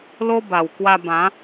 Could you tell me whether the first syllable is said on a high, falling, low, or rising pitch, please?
high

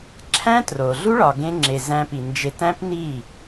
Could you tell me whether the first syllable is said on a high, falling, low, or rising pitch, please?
high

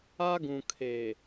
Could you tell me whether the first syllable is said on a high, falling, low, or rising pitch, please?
high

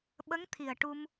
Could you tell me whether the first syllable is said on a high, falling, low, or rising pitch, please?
rising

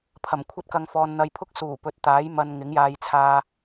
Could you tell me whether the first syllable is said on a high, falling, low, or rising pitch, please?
low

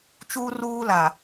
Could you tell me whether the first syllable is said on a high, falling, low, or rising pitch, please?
high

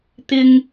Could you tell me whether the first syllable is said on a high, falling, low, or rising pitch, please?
high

